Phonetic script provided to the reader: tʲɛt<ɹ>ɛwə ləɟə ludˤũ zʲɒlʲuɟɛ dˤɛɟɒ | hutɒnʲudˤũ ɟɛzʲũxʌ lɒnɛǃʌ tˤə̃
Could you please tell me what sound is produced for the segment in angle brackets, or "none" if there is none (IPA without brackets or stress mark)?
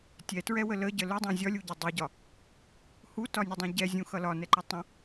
ɹ